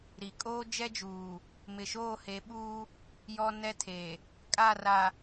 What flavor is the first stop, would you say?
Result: ejective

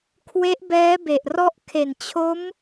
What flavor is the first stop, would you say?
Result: aspirated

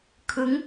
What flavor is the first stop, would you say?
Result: aspirated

